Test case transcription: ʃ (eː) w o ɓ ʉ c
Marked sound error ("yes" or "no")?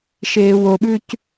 no